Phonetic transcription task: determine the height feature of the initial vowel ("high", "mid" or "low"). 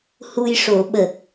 high